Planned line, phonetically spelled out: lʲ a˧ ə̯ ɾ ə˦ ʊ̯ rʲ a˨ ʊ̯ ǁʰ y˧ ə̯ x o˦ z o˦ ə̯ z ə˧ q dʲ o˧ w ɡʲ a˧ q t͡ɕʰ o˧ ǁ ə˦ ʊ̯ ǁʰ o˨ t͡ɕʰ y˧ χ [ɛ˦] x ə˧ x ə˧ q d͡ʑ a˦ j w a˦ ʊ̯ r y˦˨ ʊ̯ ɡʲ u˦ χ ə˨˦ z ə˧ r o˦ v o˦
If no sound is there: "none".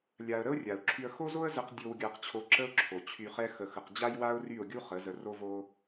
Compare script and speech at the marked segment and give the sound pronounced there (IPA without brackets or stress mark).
ɛ˦